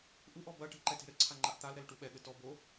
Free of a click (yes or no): no